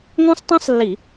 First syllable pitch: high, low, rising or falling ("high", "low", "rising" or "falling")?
high